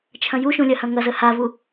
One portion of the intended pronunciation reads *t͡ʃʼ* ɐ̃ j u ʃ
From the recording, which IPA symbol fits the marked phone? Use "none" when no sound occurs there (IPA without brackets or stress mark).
t͡ʃʰ